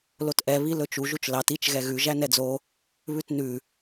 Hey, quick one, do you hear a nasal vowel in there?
no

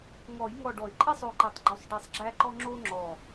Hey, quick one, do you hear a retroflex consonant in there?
yes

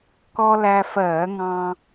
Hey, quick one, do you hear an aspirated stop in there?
no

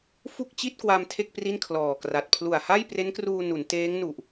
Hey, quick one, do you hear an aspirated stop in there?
yes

